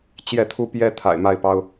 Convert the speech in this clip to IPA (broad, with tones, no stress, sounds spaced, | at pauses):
t͡ɕ j ɛ˥˨ t̪ʰ u˦ p j ɛ˦ t̪ʰ a̰˨˩ ɪ̯ m a˥˨ ɪ̯ p ɑ˦ ʊ̯